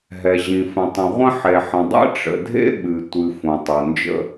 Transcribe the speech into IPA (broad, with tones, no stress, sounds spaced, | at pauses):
ɦ ɛ˩ ʑ ĩ˩ f ə̃˩ tˤ ə̃˩ ʁʷ ə̃˥ ħ e˩ ħ ə̃˩ dˤ ɛ̰˥ ʈ͡ʂ ə̰˩ dʱ ḛ˥ ɓ ɨ˩ tʷ ɨ˩ f õ˩ tˤ o˩ n d͡ʒ ə̰˥